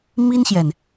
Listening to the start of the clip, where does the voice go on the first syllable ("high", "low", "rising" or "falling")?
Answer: high